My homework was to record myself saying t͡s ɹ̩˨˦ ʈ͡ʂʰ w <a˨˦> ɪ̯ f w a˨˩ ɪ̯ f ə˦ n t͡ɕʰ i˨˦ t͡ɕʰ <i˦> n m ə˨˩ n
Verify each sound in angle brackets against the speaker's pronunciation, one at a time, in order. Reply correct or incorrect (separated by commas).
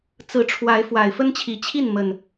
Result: correct, incorrect